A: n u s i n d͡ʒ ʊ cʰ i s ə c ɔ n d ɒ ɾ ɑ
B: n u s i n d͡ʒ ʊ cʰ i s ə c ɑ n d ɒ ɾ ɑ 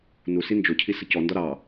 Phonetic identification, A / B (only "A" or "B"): A